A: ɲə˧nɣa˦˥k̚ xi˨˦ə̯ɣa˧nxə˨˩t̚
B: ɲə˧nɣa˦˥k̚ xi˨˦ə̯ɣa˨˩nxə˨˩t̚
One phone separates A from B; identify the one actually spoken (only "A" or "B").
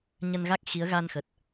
A